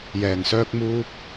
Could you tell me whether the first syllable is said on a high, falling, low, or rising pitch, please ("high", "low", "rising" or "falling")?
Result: low